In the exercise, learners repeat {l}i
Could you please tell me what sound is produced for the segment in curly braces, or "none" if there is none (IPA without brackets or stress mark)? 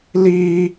l